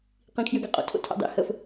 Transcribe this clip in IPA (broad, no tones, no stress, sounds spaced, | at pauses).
q ĩ kʰ j ø ɡ a qʼ o̰ tʰ o̰ tʰ a̰ dˤ ḭ h ə f